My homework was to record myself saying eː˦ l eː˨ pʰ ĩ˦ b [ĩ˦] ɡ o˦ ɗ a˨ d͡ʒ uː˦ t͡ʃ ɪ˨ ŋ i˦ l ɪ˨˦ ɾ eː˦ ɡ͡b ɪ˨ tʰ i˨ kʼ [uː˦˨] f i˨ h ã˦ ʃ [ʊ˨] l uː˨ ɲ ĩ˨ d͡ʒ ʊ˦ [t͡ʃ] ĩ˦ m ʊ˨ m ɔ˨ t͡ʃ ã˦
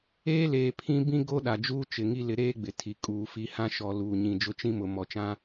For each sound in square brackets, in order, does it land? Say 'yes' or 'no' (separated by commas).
yes, no, no, yes